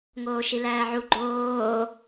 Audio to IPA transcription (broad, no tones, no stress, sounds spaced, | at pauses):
ŋ oː ʃ i l æː ʕ u ɡ͡ǃ oː